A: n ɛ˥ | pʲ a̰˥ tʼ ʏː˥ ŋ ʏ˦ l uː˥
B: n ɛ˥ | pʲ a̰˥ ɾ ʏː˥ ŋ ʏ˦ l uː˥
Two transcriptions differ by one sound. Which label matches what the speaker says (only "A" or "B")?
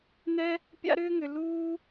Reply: B